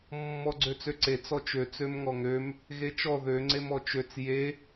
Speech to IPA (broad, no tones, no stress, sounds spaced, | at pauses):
mː ɔ ɡ͡ǀ ø t͡s ø ǀ e t͡s ɔ t͡ʃ ø t͡s ø m ŋ ɔ ŋ ø m | ɣ e t͡ʃ ɔ ð ø ŋ͡ǀ e m ɔ t͡ʃ ø t͡s j e